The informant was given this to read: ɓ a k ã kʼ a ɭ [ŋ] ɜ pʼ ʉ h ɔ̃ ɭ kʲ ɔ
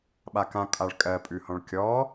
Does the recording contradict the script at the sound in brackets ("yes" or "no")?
yes